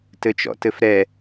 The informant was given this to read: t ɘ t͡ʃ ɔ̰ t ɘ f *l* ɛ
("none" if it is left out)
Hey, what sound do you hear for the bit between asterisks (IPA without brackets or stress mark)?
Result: ɾ